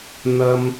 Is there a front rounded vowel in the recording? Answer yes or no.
no